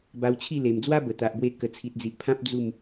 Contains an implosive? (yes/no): no